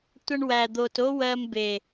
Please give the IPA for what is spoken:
tʷ ʌ˧ ɳ w æ˨ d̪ o˨ t o˦ w ɜ˧ m b e˨

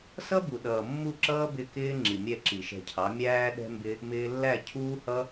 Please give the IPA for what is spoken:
s ʌ˦ b u˨ ɗ ʌː˨ mː u˦˨ ǁ ʌː˦ b ɪ˦˨ k ɪː˦ ŋ͡ǁ i˨ mʲ ɛ˦˨ ǁ i˨ ʃ ɛ̤˧ cʰ ɑ˨˦ mʲ æː˦ ɗ ɛ̤˦ m b ɪ˦ | m ɪː˧ lː æ˦˨ cʰ uː˦ h ʌ˦

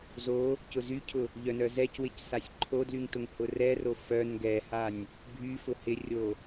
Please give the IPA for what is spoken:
z o | c ʊ z y cʰ ʊ | ʎ œ n œ z ɛ c w ɪ c s a sʲ ǃʰ o d l y ŋ t ʊ ŋ h ʊ r ɛ r o f œ n ɡ ɛ h a nʲ | bʱ y f ʊ h ɪ rʲ o

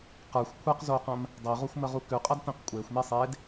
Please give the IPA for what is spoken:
q ə˞ xʷ kʷʰ ɛ q z oː q ɐ̃ m | dˤ e ʁ o xʷ m ə ʁ u k ʉ qʼ ɐ d t̪ ẽ q kʷʼ eː xʷ m e sˤ eː d

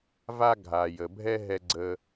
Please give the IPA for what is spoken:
v a˥ ɡʱ a˩ j ə˩ bʱ ɛ˥ ɦ ɛ˧ ɡ͡ǀ ə˧

